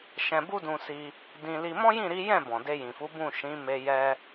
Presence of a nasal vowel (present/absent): present